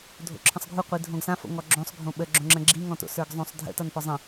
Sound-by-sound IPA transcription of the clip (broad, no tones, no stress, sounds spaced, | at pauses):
dʱ o̰ ǁʰ ə̃ sˤ ɡʱ u qʷ i dʱ õ ɡ s ã f o̰ ŋ ɔ ɡ͡ǁ õ sˤ ɡʱ õ ɓ ə ɡ͡ǁ õ ŋ͡ǁ ə̃ ɡ͡ǁ i ŋ ɔ̃ t o̰ s ə˞ ɡ zˤ õ sˤ dʱ ə̰ t ʌ n f ɔ zˤ ə̃